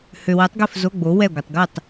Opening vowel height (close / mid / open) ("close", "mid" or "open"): mid